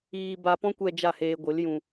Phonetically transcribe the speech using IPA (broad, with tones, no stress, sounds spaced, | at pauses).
iː˧ b a˧ p ɔ̃˦ kʷ ɛ˧ d͡ʒ a˦˨ h eː˧ ɡʷ ɨ˨˦ l j ũ˧